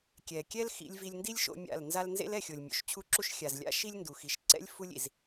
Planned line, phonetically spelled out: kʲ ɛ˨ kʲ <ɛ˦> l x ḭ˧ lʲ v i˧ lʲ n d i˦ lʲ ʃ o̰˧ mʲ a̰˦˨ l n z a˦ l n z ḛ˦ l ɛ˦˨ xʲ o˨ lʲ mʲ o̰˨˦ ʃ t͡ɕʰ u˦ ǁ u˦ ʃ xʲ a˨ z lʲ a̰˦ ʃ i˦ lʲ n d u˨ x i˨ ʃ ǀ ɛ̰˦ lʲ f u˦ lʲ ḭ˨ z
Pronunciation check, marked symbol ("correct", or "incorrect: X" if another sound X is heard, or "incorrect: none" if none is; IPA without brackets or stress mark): correct